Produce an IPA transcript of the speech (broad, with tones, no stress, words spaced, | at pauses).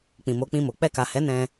k͡pĩ˨mo˨˦k͡pĩ˧mo˨ k͡pɛ˧ka˨hɛ˨˦ nɛ̃˧